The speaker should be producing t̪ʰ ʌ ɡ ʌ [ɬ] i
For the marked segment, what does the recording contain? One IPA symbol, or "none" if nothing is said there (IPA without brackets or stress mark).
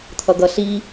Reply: ɬ